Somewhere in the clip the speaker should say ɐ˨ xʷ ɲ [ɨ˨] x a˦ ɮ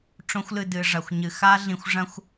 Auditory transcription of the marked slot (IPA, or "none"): ɨ˨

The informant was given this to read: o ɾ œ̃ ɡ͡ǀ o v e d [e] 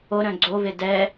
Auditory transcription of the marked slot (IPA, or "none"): ɛ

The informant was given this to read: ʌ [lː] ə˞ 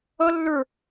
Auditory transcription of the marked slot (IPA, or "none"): lː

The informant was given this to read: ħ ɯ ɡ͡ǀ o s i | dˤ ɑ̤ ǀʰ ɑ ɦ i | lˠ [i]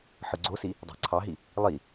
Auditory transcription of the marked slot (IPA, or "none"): i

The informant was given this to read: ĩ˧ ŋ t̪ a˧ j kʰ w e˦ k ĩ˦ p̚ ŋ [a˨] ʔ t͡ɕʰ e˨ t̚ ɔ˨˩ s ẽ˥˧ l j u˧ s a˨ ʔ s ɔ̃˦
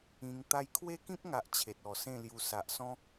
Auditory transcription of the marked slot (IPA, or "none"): a˨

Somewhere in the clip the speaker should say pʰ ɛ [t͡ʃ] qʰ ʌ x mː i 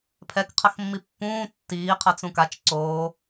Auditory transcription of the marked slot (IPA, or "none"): k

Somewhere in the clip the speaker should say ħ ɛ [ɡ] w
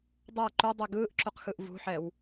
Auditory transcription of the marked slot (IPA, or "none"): none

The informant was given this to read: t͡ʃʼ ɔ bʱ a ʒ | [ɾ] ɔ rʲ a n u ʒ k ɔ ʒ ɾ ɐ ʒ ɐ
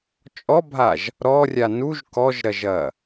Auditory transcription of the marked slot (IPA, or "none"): ɾ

